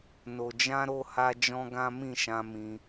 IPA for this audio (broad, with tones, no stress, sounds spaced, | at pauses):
n o˨ d͡ʒ ã˧ ɾ o˧ h a˧ d͡ʒ ɔ̃˦ ɡ ã˦ m ĩ˦˨ ʃ ã˧ m ĩ˧